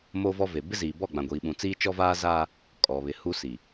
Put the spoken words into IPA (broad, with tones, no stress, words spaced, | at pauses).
moː˦vɔ˦ve˨ bɪ˦ziː˨bɔ˦˨ ɡ͡bã˨ɡʷiː˨ɓũ˨ t͡siː˦t͡ʃɔ˦ vaː˦zaː˦ | kʼɔ˨ βɪ˨hu˦si˨